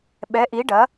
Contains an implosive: yes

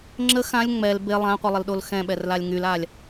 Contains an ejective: no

